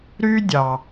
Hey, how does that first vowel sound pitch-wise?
high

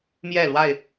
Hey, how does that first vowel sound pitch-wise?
falling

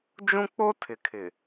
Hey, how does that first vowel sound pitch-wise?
high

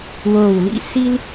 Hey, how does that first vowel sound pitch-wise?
low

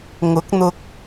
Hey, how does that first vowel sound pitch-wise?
rising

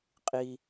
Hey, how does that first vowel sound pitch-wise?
high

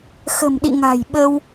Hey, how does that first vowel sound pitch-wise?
low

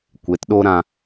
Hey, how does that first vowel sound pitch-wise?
rising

